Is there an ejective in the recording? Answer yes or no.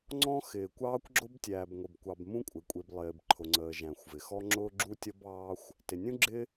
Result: yes